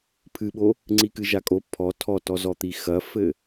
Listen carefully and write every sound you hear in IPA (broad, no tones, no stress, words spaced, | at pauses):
pʰɨɓo | ŋ͡ǀikɨʒakʼo pʰɔ tʰɔtɔzɔt̪i xɐfɘ